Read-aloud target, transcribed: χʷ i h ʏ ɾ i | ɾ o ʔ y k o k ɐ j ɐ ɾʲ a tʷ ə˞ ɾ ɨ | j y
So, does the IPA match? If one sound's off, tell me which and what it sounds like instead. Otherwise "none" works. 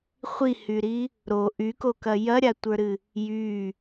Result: ʏ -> y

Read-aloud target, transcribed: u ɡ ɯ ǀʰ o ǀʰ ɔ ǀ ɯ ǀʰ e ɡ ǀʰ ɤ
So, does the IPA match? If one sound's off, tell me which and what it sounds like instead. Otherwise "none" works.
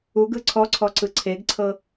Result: o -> ɔ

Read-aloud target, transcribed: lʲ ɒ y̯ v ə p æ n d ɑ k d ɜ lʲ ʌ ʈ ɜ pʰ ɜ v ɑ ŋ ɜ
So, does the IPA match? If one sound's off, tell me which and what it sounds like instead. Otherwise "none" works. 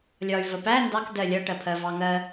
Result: none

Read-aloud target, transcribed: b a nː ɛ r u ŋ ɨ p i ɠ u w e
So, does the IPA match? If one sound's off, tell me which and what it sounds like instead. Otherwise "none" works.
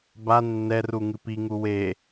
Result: ɠ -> ŋ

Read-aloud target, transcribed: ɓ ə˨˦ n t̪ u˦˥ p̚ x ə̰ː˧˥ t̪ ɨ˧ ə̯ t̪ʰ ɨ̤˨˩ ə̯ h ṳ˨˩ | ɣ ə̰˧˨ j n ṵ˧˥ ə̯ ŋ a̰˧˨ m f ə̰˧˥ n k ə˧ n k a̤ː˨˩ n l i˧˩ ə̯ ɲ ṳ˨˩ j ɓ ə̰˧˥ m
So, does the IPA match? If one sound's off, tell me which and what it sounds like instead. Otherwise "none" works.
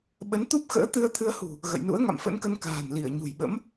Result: ɨ̤˨˩ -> ɨ˧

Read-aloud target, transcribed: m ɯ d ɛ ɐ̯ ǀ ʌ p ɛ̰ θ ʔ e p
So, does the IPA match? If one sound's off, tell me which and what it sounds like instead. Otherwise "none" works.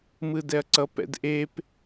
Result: θ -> d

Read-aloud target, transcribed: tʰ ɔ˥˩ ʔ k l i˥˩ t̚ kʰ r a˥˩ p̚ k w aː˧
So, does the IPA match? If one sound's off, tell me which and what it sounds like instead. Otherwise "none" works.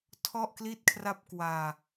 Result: none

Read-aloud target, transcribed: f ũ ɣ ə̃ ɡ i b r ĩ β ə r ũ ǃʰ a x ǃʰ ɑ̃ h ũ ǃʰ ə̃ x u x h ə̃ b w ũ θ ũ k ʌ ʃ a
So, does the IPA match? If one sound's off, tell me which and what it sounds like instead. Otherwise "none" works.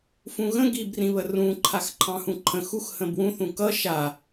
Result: none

